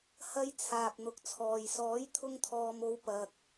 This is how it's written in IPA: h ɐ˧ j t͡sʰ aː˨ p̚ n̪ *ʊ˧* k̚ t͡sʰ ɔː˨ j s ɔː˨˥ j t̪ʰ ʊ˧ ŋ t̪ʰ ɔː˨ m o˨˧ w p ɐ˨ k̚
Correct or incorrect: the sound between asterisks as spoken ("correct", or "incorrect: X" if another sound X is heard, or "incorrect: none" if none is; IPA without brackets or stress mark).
incorrect: ʊ˨